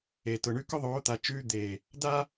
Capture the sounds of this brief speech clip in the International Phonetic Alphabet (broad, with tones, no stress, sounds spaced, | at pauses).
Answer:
e˨ t ʊ˨ ɳ ʉ˦ k ʊ˦ ðˤ oː˨˦ t̪ a˨ t͡ʃ ʉː˦ d̪ eː˨ | d a˦